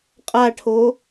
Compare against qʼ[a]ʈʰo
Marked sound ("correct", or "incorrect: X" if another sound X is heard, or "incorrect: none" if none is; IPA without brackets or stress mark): correct